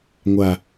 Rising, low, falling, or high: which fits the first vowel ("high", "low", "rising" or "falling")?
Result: low